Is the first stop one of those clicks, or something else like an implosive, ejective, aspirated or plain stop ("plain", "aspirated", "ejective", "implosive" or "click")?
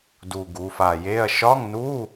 plain